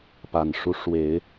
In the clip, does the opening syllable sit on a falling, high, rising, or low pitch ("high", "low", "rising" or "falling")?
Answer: low